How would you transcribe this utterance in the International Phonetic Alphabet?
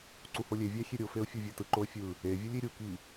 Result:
ǀ u h o lʲ e vʲ æ xʲ e ɾʲ o f e ʊ̯ fʲ o vʲ e t ɯ ǃ o ə̯ fʲ ɯ | e vʲ ɯ lʲ i ɾʲ u k i

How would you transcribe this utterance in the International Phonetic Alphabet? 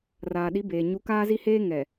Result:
r aː˨ ɗ i˨˦ b eː˨ ɲ u˨˦ k aː˦ z i˦ h eː˦ ŋ ɛ˨

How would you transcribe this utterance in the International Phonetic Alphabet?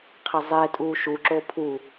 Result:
qʰ ɛ zˤ e tʼ uː ʃ u ǁ o pʰ u

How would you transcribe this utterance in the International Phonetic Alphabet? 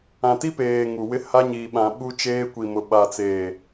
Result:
ã˨ t i˦ p eː˨ ŋ u˨ w ɪ˦ h a˦ ɲ iː˨ ɓ ã˨ ɓ u˦ t͡ʃ eː˦ kʷ i˨ m ʊ˨ ɓ a˨ t͡s eː˨

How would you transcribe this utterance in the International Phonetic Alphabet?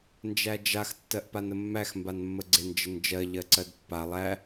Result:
n d͡ʒ æ d͡ʒ a x tː ɜ ʔ p a n ə mː æ x m b a n mː ə ɡ͡ǀ e n d͡ʒ ə n d͡ʒ ɜ ʎ ɜ ǀ ɜ d pː a lˠ æ

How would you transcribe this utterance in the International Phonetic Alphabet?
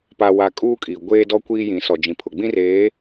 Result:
p a˨ w a˨ kʼ uː˦ kʼ i˨ ɡʷ eː˦ d ɔ˦ kʷ iː˦ j ĩ˨˦ s ɔ˨ d͡ʒ ĩ˨ pʰ ʊ˨ ɡ͡b ĩ˦ r eː˨˦

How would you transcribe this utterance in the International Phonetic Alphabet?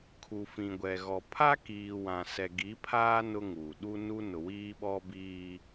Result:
kʰ u˨ f ĩ˨ ɡʷ ɛ˨ ɣ ɔ˨ pʰ a˦ k iː˨ w ã˨ s ɛ˨ ɡ i˨˦ pʰ aː˦ n ʊ˦ ŋ uː˨ ɗ u˦ n u˦ n ʊ˨ w iː˦ ɓ ɔ˦ b iː˦

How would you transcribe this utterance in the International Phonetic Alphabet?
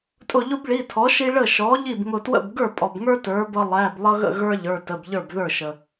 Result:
tʼ ʊ˧˩ ʎ ʊ˦ b ɭ i˩˧˩ tʰ ɔ˩˥ ʃ i˦ ɭ ə˥˩ ʃ ɔ˩˥ ʎ i˥˩ b ŋ ʊ˧˩ t w ə̰˥˩ b ɡ ə˞˥˩ pʼ ɔ˩ b ŋ ə˞˦ t ə˞˩˥ b ʌ˦ lˠ æ˩˧˩ b lˠ ʌ˦ ɣ ə̰˥˩ ɣ ə˞˦ ʎ ə˞˩˧˩ t ə˩˧˩ b ʎ ə˞˥˩ b ð ə˞˥˩ ʃ ə˩

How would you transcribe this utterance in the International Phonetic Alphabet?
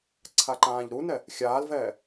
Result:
ǀʰ a ǃ ãː ʎ ɾ u n ɛ | xʲ aː l v ɛː

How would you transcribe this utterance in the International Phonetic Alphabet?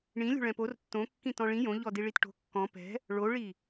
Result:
ɳ ĩ lʲ o̤ ɭ ɛ̃ p o r tː õ kː ĩ t ɔ̃ ɭ ĩ j õ ʎ ɔ d i ɭ i t ʈ o̤ kː ɔ̃ p ɛ̤ | ɭ o ɭ i

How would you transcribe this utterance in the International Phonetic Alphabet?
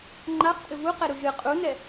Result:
ŋ͡ǃ a χ tʼ ɘ v u q ɛ ɾ u ʒ ɨ qʼ u n ɛ

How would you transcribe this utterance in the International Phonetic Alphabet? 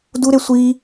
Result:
d u ɾ e sʷ i

